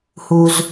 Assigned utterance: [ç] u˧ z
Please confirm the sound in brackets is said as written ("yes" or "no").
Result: no